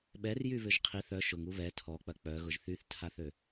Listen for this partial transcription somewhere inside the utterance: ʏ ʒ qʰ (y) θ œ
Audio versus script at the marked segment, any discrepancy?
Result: yes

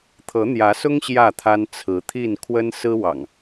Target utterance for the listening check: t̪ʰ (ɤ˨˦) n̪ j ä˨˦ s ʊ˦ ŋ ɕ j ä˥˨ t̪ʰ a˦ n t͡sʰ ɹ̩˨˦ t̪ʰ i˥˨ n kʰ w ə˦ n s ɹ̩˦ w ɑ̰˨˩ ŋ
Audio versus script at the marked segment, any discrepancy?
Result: no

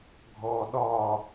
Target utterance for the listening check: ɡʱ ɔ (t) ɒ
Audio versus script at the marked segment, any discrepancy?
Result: yes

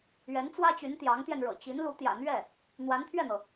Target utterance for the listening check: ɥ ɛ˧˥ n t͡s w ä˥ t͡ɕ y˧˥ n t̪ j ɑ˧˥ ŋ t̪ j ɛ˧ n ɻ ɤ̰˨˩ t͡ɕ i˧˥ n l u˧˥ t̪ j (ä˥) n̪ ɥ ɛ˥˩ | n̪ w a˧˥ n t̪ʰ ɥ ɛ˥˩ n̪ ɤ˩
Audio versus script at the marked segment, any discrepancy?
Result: yes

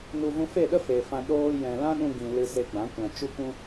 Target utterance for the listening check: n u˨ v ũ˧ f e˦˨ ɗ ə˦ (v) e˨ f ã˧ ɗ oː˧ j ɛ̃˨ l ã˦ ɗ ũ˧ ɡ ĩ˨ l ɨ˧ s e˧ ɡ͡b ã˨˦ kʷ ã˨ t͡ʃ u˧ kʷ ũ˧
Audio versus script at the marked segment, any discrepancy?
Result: yes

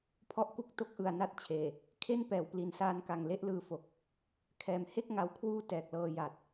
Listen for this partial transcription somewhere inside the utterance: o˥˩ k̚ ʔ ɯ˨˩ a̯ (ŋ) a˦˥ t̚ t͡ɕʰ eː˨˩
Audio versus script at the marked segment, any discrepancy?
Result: yes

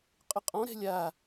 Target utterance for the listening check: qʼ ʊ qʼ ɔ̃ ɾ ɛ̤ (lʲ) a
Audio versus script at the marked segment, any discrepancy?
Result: no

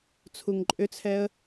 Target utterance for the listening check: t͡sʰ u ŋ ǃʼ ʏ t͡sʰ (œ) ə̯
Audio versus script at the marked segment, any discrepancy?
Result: yes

